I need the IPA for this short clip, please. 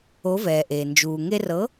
o˩˥vɛː˩ ʔeː˩nd͡ʒuː˩ ŋe˧rɤ˩˥

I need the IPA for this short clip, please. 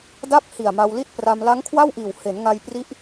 da˥˩p̚ hi˨˩a̯ma˧wli˥˩t̚pra˧m la˦˥ŋkʰwa˥˩wʔiː˨˩w he˩˦nŋa˧j pri˦˥ʔ

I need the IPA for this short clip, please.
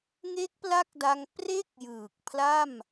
ŋe˦˥k̚pla˦˥k̚da˧ŋ pre˥˩k̚ jɯː˨˩k̚ pʰla˥˩m

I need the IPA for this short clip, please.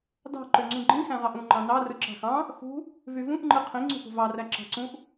dɑ̤ ǃøŋ͡ǀũɡ͡ǃĩ xæ̃ʁɑʔũ ŋ͡ǃɑ̃nɑ rɯǁɑ̤xɑ̃ | xṳ | vyvũʔ ŋ͡ǃɯqʰĩ ŋ͡ǀṳpṳvɑ ræǁɑ̤ǀũʔ

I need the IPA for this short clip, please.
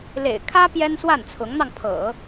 lḛ˨˩ɪ̯kʰä˥ pjɛ˥nswa˥˩nt͡sʰʊ˧˥ŋn̪ɑ˧ŋ pʰɤ̰˨˩˦

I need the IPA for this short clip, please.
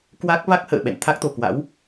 kwa˦˥k̚ va˦˥k̚hə̰ː˧˨ ɓɛ̰˧˨nt̪ʰa˦˥k̚t̪o˨˩kwa̰˧˥w

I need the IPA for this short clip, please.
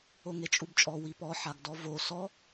oŋet͡ʃʼubt͡ʃʼɔ wipɔ ħaɡdɔvo sɔ

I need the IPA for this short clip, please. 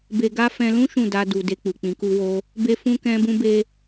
be˧ɡa˦ fɛ̃˧lũ˦ ʃũ˦˨da˧ du˨ de˧k͡pu˨ k͡pĩ˨˦ku˦wo˦ | be˦fũ˦kɛ̃˦ bũ˦be˦

